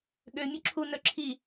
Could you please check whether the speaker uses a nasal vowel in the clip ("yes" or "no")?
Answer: no